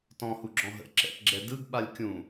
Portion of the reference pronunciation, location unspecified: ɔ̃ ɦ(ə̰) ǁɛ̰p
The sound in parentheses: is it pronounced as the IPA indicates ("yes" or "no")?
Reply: yes